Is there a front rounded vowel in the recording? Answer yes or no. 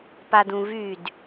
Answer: yes